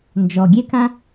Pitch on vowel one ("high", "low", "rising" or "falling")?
low